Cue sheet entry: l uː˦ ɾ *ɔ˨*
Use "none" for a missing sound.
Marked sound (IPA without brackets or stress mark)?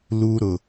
ʊ˨